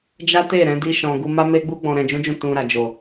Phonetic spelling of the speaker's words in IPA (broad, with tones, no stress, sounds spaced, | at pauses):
d͡ʒ a˦ t e˦˨ ɾ ɛ̃˨˦ d i˦ ʃ ɔ̃˧ ɡ u˧ m a˦ m e˦ ɡ͡b u˦ ɡ͡b ɔ̃˧ ɾ ɛ̃˧ d͡ʒ ũ˦ d͡ʒ ũ˦˨ t ũ˧ ɾ a˨ d͡ʒ o˨